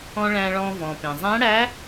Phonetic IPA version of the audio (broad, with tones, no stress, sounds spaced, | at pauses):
ɔ̃˧ ɭ æ̃ː˧ ɭ ɔ̃ː˧ v ɔ̃ː˩ p ẽ˩ zˤ æ̃˧˥ ɽ æ˧˥